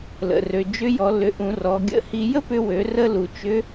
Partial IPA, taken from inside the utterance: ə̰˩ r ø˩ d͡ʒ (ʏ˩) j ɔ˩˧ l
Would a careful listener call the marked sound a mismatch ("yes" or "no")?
yes